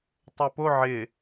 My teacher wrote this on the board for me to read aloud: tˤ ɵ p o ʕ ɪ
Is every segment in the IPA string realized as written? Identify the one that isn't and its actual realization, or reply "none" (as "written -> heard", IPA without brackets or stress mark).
ɵ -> o